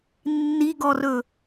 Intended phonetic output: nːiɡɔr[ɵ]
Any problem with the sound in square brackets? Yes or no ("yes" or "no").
no